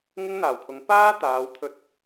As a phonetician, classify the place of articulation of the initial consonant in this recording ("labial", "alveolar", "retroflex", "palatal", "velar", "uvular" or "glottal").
velar